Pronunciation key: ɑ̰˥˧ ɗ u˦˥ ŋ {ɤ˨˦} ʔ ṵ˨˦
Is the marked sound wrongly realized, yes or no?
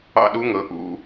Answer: no